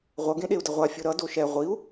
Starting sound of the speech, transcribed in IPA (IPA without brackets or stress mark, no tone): ʁʷ